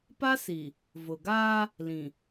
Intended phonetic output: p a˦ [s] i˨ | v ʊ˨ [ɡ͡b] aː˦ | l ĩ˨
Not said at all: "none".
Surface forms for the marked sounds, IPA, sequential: s, ɡ

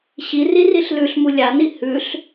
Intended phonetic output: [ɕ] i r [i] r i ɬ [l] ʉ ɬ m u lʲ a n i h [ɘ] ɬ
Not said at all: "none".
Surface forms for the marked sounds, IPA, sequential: ɕ, i, l, ʉ

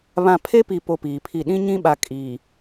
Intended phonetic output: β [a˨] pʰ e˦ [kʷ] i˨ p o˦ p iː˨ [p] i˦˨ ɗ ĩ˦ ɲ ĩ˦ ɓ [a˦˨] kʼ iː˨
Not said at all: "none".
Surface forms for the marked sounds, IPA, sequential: ã˨, p, pʰ, a˨

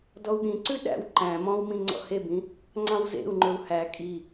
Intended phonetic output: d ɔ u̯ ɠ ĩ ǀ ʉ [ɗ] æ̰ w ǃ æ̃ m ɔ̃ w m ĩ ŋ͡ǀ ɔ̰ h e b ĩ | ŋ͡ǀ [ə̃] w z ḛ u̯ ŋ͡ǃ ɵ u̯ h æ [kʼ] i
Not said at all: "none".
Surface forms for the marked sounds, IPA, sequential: ɗ, ɑ̃, kʼ

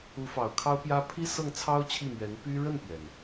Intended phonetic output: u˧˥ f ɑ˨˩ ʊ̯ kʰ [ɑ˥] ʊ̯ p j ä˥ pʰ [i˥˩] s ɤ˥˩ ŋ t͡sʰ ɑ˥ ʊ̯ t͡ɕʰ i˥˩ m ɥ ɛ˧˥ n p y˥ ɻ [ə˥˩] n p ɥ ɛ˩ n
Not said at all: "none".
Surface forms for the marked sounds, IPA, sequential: ɑ˥, i˥, ə˥˩

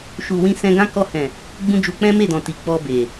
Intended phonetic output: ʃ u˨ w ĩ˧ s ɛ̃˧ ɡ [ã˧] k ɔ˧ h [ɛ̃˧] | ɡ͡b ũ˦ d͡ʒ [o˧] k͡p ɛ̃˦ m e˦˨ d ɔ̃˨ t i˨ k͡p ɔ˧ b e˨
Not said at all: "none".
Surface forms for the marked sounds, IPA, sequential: ã˦, ɛ̃˨, u˧

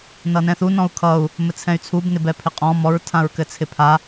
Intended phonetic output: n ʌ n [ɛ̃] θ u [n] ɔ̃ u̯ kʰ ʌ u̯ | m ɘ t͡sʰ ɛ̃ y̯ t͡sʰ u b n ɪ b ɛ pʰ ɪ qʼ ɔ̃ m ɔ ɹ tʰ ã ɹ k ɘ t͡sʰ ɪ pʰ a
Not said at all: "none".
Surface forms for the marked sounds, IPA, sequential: ɛ̃, n

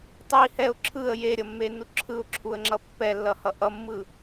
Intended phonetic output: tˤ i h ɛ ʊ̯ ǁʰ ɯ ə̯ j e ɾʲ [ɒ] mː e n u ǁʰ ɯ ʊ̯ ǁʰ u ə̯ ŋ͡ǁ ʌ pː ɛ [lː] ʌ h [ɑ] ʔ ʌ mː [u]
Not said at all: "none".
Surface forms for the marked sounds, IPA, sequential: ʌ, lː, ʌ, ɯ

